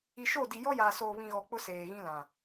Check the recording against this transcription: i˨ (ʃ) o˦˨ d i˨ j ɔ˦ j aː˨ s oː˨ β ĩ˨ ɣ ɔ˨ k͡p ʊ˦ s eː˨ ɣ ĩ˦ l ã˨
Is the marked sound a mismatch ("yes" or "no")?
no